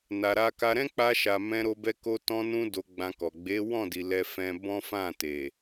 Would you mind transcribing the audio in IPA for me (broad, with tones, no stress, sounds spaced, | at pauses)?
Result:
n a˨ ɾ a˧ k a˧ ɾ ɛ̃˦ k͡p a˧ ʃ a˨ m ɛ̃˧ ɾ o˧ b ɛ˧ k o˧ t ɔ̃˧ n ũ˧ d o˧ ɡ͡b ã˧ k ɔ˨ ɡ͡b e˨˦ w ɔ̃˦˨ d i˨ l ɛ˧ f ɛ̃˧ b ɔ̃˦ f ã˦˨ t e˨